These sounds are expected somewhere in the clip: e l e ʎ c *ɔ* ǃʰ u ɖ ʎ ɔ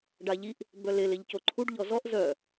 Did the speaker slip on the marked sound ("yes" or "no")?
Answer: yes